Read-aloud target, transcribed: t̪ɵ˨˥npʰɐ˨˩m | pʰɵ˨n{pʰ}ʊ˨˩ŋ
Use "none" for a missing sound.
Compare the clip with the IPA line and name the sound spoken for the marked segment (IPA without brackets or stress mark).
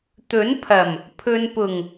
p